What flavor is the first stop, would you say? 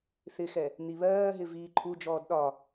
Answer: click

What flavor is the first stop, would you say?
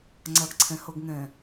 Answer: click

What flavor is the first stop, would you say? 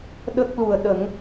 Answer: implosive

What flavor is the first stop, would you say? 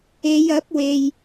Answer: plain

